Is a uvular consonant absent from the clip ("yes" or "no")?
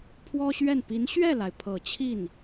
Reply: yes